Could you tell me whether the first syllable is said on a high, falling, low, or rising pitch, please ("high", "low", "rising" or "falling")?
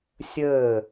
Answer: falling